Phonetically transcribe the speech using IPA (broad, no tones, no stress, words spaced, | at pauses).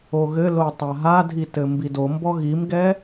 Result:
oɣɘlo tˤaɦadʱi tɘmbidombɔ ɣimɡɛ